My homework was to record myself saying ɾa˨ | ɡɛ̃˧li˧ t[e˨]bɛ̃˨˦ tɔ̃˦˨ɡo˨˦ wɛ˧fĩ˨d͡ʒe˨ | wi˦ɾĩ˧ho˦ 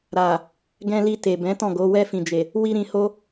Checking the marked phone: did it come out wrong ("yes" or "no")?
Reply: no